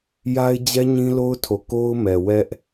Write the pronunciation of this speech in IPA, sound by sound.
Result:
j a˦ ɪ̯ d͡ʑ ɛ˦ ɲ ĩ˦ l o˦ ʊ̯ tʰ o˨ k o˦ ʊ̯ m ɛ˨ w ɛ˦ ʔ

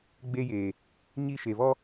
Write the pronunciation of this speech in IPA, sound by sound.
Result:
ɡ͡b e˦ j eː˨ | ɲ i˦ ʃ e˨ β ɔ˦

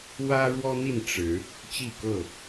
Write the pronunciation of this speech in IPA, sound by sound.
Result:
w ä˦ ɻ w ɔ˦ n̪ i˥˨ n ʈ͡ʂ ɻ̩˨˦ | t͡ɕ i˥˨ k ɤ˥˨

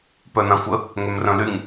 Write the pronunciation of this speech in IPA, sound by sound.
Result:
p œ n ã xʷ ə | ŋ ø m r œ̃ l y ŋ

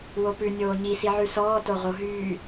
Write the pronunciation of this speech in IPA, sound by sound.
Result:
w o p ʉ nʲ oː ɲ i s i ʕ ʉ s ɔː t o ʁ o ɦ yː

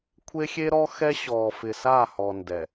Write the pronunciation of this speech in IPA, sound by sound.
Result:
kʷʰ e˦ xʲ e˦ ɾ ɔ˦ x ɛ˦ ɕ ɔː˨ f ɪ˨ s aː˦˨ h ɔ˨ n d ɛ˨

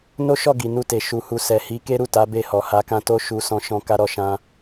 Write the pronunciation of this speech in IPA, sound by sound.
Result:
n o˦ ʃ ɔ˦˨ ɡ i˨ n u˧ t e˨ ʃ u˨ h u˨ s ɛ˨ h i˨˦ k e˦ ɾ u˦˨ t a˨˦ b e˦˨ h ɔ˨ h a˧ k ã˦ t o˦ ʃ u˧ s ɔ̃˦ ʃ ɔ̃˦ k a˦ ɾ ɔ˦˨ ʃ ã˧

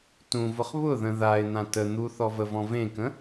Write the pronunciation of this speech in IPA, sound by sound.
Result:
t ũ v ʊ χ β ʊ ð ə̃ ð a ɪ̯ n̪ ã t ə n̪ u θ ɔ v ə v ɔ̃ v ẽ k ə̃

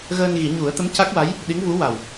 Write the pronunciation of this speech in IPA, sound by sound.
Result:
ɣ əː˧ n ɣ i˨˩˦ ɲ u˨˩˦ ə̯ t̪ ə˧˥ m c a˦˥ k̚ w a˧˥ j | ɗ i˧˥ ŋ v u˧˥ w a˨˩ w

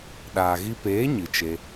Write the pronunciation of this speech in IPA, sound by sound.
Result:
ɗ aː˨ ɣ i˧ p eː˨˦ ɲ ɨ˨ t͡ʃ e˧

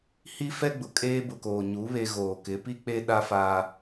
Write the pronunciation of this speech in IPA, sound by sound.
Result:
h i˦ f ɛ˦ ɡ͡b ʊ˨ kʼ eː˦ b ʊ˨ k oː˨ ɲ u˨˦ β e˦ ɣ oː˨ k ɪ˨˦ p i˦ k͡p e˦ ɗ a˦ f aː˦

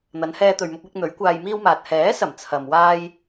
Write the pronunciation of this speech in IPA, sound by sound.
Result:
n̪ ɐ˨˧ n h ɛː˧ t̪ ɵ˨ ɥ m ʊ˧ k̚ w ɪ˧ k̚ n̪ ɵ˨˥ ɥ kʷ aː˧ j m iː˥ w m aː˨ t̚ h ɛː˨˥ s ɐ˨˩ m t͡sʰ ɐ˨ m w aː˥ j

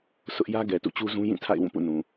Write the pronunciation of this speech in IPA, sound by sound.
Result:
s ʊ˦ ʔ j ä˦ ɡ ɛ˨ t ṵ˦˨ t͡ɕ u˦ z ũ˦ j ĩ˦˨ tʰ a̰˦˨ ɪ̯ w ũ˦˨ p ṵ˦˨ n ũ˨

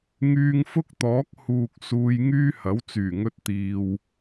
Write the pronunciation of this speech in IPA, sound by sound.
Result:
ŋ yː˧ ŋ f ʊ˥ k̚ t̪ ɔː˨˥ k̚ h uː˨ k̚ s uː˧ j ŋ yː˥ h ɐ˨˥ w t͡s yː˨˩ ŋ ɵ˧ t̚ t̪ iː˨ w

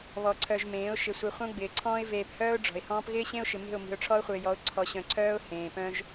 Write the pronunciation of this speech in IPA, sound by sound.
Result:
β ɔ˨ ǀʰ œ˨ ʒ m ẽː˨˦ ʊ̯ ʃ ɪ˨ sʷ i˨ χʷ œ̃˦ ɡ͡b ɪː˨ ǀʰ ɔ̃ː˦ ɪ̯ v eː˨ p h œː˦ ʊ̯ ɖ͡ʐ ɔ̤˨ ɪ̯ h ɔ̃ː˦ p ɣ ɪː˦ ɕ ẽ˦ ʊ̯ ʃ ɪ˨ m e̤˦˨ ʊ̯ m i̤˨ ʊ̯ ʈ͡ʂʰ ɔ˦ ʊ̯ χʷ ɪː˨ j ɔ˨˦ ʊ̯ ǀʰ ɔ˨ ɕ œ̃˨ ǀʰ œː˦ ʊ̯ h ẽː˨ p œ̃˦ ʒ

